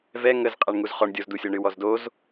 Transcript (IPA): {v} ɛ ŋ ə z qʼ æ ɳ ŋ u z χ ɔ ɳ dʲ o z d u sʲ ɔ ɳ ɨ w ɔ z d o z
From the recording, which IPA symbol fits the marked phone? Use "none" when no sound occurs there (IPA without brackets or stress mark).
v